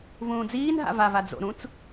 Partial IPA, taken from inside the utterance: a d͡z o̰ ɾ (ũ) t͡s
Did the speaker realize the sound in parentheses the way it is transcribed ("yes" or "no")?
yes